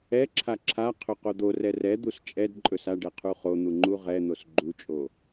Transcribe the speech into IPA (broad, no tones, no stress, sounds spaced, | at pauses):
ɛ ǁʰ a ǁʰ a qʰ ɵ q o d̪ o r ɛ r ɛ d̪ u s t͡ʃʼ ɛ d ǃʼ ɵ s a ɖ ɛ qʰ u χ o n̪ u ŋ͡ǃ u ʁ ɛ n̪ o s ɡ͡ǃ u t͡ʃʼ o